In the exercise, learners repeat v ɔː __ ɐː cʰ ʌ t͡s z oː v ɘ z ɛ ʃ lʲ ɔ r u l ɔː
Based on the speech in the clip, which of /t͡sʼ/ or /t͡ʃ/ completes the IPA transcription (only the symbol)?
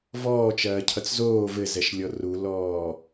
t͡ʃ